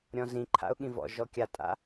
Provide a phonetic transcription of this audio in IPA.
ɾʲɔ̃zĩǃʰa̰ʊ̯ ɠĩvɔ̰ʒɔ kʲatʼa̰

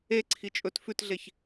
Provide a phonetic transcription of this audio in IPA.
eǀʰi t͡ʃʼɵt fʉtɮeç

